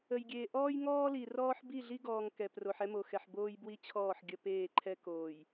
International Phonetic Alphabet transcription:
ə˨ j ɡʲ eː˨ ʔ ɔː˦ j ŋ ɔː˦ l i˨ r ɔː˦ ħ b i˦˨ ɮ i˦ ɡ ɔː˨ ŋ k ɛ˨ p r o˨ ħ ɛ˦ m o˨ x ɛ˨ ħ b oː˦ j b w i˦ t͡ɕʰ ɔː˦˨ ħ ɡʲ ə˦ p eː˦˨ ǃʰ ɛ˦ k oː˨ j

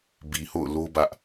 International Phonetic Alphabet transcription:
b i˨ h o̰˦˨ ʊ̯ l o˦ b ä˦ ʔ

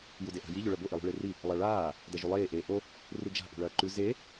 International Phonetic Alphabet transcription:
j u d e ʔ a̤ j i ʎ o ɭ ɐ b o ʔ i lˠ ṳ ɭ e r i | lˠ a ɭ aː | d ɐ ʒ u lˠ eː ʔ eː ʔ o | r u d͡ʒ a̤ ʔ ṳ ɭ ɐː ǃ ʉ z e

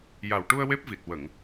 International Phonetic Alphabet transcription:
j a˨˩ w ʈ u˧ ə̯ w e˦˥ p̚ v i˨˩ t̚ w ə˨˩˨ ŋ

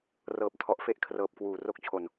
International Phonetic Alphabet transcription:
r ɤː˨˩ p̚ tʰ ɔ˨˩ ʔ f e˥˩ ʔ kʰ r ɤː˨˩ p̚ k w uː˨˩ r o˦˥ k̚ t͡ɕʰ o˨˩ n

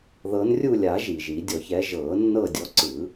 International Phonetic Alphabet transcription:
ð ɤ˨˦ n rʲ u˦˨ lʲ a˨˩˦ ʒ i˩ ʒ i˨˩˦ dʲ ɔ˨˩˦ ç ɛ˨˦ ʒ ɤː˨˩˦ nː ɤ˦˨ dʲ ɔ˨˦ ǀ ɯ˨˩˦

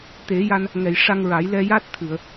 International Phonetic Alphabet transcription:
t̪ e˨˩˦ j a˧ n | ŋ ɛ˨˩˨ j ʂ a˧ ŋ ɹ a˨˩˦ j l ɛ˧ j a˦˥ t̚ t̪ʰ ɨ˨˩˨ ə̯

